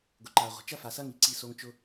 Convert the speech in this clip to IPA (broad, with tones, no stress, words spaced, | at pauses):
ɡʊ˨ǃaː˨ʁʷə̤˨˦ t͡ʃɐ˦fa˨sɐ˦ŋi˨ ǀi˦˨so˦ŋ t͡ʃʊ˦